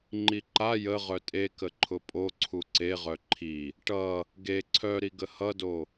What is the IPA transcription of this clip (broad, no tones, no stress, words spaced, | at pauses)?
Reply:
ŋ͡ǃiǃa jə ʁœtʼe kəǃʰʊpʼo ǀʰuǀeʁœ ǃʰi | ʈʌ | ɡe ǀʰœɾiɡə hʌdo